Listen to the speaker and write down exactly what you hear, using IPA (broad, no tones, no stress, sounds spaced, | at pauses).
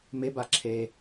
m e b a ǁʰ e